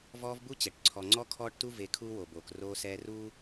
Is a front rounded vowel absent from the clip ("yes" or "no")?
yes